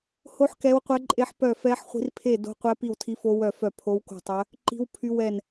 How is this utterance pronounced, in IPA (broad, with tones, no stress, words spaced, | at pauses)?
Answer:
ho˦˥ħ kɛ˦˥wqʷɛ˦˥ǃʼe˦˥ħpœ˥˧ fɛ˦˥ħχʷi̤˦˥r pʰe˥˧do̤˦˥qʷɛ˦˥ pi˥˧wtʰi˦˥fo˦˥ wœ˥˧fœ˥˧ pʰo˦˥wko̤˥˧tˤœ˦˥ | ǃi̤˦˥wpʰy˦˥wɛ˥˧n